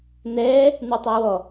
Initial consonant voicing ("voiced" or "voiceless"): voiced